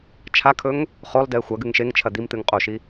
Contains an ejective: yes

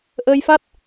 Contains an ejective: no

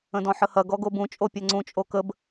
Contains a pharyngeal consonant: yes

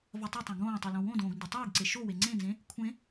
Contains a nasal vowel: yes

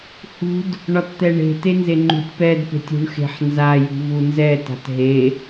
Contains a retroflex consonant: yes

